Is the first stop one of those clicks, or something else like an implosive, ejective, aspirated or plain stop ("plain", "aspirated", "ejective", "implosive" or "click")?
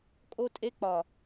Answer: ejective